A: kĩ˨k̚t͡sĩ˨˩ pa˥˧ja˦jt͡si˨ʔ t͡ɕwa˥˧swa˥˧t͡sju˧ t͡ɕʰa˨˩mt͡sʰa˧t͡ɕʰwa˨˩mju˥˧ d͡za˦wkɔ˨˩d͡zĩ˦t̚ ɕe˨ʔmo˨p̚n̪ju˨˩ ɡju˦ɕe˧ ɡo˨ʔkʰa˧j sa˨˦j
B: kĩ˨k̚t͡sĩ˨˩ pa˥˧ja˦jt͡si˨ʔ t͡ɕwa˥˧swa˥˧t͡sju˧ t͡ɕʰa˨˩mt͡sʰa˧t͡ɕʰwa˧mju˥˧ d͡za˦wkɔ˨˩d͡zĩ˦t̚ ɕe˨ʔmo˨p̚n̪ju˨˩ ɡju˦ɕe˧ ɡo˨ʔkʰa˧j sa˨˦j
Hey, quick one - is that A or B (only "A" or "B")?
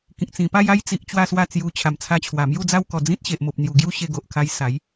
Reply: A